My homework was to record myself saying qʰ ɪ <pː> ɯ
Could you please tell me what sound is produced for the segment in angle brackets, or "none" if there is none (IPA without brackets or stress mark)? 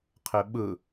ɓ